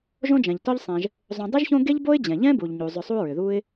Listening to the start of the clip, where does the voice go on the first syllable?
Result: high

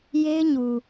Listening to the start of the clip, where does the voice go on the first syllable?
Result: high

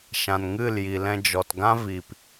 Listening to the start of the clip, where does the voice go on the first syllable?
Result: low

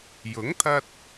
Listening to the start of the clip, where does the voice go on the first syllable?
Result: rising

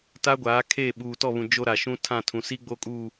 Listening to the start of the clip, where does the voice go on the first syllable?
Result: high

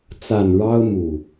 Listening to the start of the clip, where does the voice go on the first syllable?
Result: low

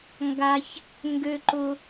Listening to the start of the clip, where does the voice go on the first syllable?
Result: high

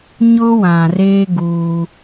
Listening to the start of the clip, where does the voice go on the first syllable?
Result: high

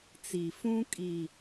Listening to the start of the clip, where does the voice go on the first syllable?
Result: low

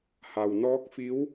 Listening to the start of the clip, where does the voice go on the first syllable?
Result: low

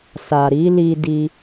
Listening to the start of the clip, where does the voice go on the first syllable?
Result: low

